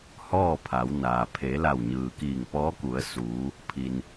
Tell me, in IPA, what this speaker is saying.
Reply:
h ɔː˥˨ pʰ a˩˧ w n aː˩ pʰ eː˩˧ l a˧˩ w ɲ ɯː˩ k iː˧˩ ŋ p ɔː˧˥ k u˩˧ ə̯ s uː˩˧ | pʰ i˩ n

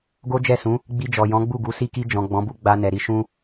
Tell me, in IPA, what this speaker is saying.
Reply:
ɡ o˦ d͡ʒ ɛ˦˨ s ũ˨˦ | ɡ͡b i˧ d͡ʒ ɔ˨ j ɔ̃˨˦ ɡ͡b u˦˨ ɡ u˨˦ s i˧ k i˧ d͡ʒ ɔ̃˨ ɡ͡b ɔ̃˨˦ b u˦ ɡ͡b a˧ n ɛ˨ ɾ i˨˦ ʃ ũ˧

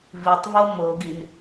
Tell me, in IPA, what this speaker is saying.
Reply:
v i tˤ v o m o ɡ i n

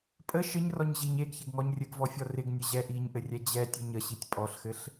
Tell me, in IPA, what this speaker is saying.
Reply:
pʼ ə ʃ ɘ ɲ r ɔ ɲ ʑ i ɲ e ɡ ç ɪ ɡ ŋ ɔ ɲ rʲ ɘ ɡ v ɔ fʲ ɔ r ɪ ɡ nʲ ə ʑ ɛ ʔ i ɲ ʔ ɘ rʲ ɛ d͡ʑ ɛ tʲ ə ɲ ə ɕ i tʲ pʼ ɔ ɬ x ɘ ɬ

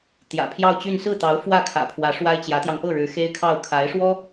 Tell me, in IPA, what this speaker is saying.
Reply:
t̪ j ä̰˨˩ pʰ j ɑ˥˧ ʊ̯ t͡ɕ y˥˧ n s ɹ̩˥˩ t̪ ɑ˧˥ ʊ̯ f w ä˥˩ kʰ ä̰˨˩ pʰ w ä˧˥ ʂ w a˥ ɪ̯ t͡ɕ j ä˧˥ t̪ j ɑ˧ ŋ p ɤ˥˩ ɻ ɻ̩˧˥ x e˥ ɪ̯ kʰ ɑ˥˩ ʊ̯ kʰ a˧˥ ɪ̯ ʂ w ɔ˥

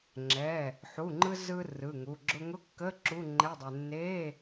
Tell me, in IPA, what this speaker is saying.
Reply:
ŋ͡ǁ ɛ˩˧˩ | ħ u˩˧˩ ŋ͡ǃ ɯ˧ z ɯ˧ r ɯ˩˧˩ ŋ u˩˧˩ ɡ͡ǁ ʊ˧ ŋ ʊ˧˥˧ kː ə˧˥˧ ǁ u˧˥˧ ŋ͡ǃ ɛ˧˥˧ dˤ e˧ nː e˧˥˧

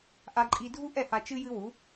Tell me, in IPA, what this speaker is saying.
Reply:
ʔ a˧ ǃʼ i˧ dʱ u˥ ʔ ɛ˥˩ h a˧ t͡ʃ ɨ˥ j ɨ˥ w u˩˥

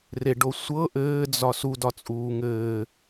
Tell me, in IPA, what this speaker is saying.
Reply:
r e ɖ o sʷ ɤ ʔ ɘː d͡z ɒ s u d ɒ t͡sʼ uː ŋ ɘː

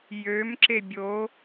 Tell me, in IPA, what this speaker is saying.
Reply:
j ø m ǁ e bʲ o

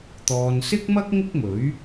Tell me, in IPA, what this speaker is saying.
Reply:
t̪ ɔː˨ n s ɪ˥ k̚ m ɐ˥ k̚ ŋ ɪ˥ k̚ m ɵ˨˥ ɥ

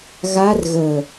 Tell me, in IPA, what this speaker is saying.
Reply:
ɣ a r ɣ ə

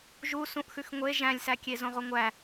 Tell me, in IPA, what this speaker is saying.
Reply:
ʒ u s ũ ʔ x ʉ x ŋʷ e ʒ æ̃ lʲ s æ kʲ e z õ ʁ o ŋʷ æ

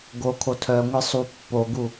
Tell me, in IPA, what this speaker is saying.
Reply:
ɡ o kʰ o tʰ œ ŋʷ e sˤ u pː o ɡ u

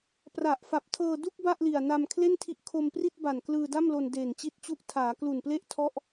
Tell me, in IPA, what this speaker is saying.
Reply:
p r a˨˩ ʔ f a˨˩ p̚ tʰ ɤː˧ d u˥˩ k̚ b a˥˩ ʔ l i˨˩ a̯ n a˧ m kʰ l e˥˩ n tʰ i˦˥ ʔ kʰ o˧ m p r i˥˩ t̚ b a˨˩ n k l ɯː˧ d a˥˩ m l o˧ n d eː˨˩ n t͡ɕ i˦˥ t̚ t͡ɕ u˦˥ ʔ tʰ aː˩˦ k l u˨˩ n p l e˦˥ ʔ tʰ ɔ˥˩ ʔ

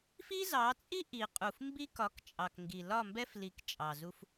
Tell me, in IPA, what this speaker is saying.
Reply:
f i˦ z ɑ˨˦ t͡sʼ i˦ ʔ i˨ qʼ u˨ f m b i˦ k ɒ˨˦ k t͡ʃʼ ɑ˨ k ŋ ɡ i˨ l ɒ˦˨ m b ɛ˦ f l i˨ k t͡ʃʼ ɑ˨ z u˦ f

